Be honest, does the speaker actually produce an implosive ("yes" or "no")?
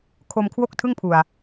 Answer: no